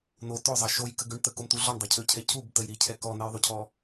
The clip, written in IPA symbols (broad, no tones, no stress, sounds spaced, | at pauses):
n o t ø zˤ ɑ ʃ o j k ə ɡ ø ɳ t̪ ə k o m t̪ u ɮ ɔ ɳ dˤ ɑ cʰ ø cʰ ɛ cʰ u b t ə j ɾ i cʰ ɛ k ɔ n ɛ j ðˤ u cʰ ɔ